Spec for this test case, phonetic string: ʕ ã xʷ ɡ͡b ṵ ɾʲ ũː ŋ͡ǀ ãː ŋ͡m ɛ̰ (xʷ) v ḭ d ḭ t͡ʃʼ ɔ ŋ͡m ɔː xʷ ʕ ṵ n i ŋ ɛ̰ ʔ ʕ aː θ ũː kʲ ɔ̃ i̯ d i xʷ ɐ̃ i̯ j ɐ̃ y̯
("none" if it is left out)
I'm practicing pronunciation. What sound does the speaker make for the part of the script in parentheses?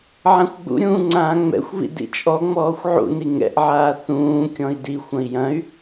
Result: xʷ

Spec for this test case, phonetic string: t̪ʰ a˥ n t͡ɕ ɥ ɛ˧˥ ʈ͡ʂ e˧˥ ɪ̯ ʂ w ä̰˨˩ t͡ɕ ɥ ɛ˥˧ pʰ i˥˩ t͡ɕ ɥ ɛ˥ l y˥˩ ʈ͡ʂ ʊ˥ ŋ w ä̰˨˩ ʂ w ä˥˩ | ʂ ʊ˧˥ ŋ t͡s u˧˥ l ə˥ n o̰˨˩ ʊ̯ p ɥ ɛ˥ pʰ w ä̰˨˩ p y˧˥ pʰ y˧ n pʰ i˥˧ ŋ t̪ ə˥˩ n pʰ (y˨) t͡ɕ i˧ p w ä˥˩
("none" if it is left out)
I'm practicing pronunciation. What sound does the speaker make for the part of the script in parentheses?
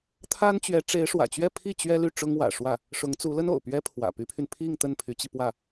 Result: y˧˥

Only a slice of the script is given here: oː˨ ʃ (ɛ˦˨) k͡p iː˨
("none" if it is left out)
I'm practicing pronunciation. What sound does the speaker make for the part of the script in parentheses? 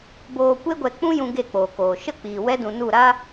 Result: ə˦˨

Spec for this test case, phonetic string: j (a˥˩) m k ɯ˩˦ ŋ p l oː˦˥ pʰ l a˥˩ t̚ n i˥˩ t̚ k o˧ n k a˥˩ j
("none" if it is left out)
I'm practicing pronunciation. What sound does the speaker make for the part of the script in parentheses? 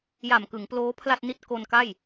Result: a˨˩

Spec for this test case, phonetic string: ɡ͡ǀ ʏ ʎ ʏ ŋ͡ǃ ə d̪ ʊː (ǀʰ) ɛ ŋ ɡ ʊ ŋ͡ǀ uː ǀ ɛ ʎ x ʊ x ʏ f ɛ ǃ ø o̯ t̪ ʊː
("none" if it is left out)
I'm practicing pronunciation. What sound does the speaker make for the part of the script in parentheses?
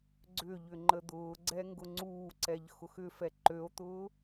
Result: ɡ͡ǀ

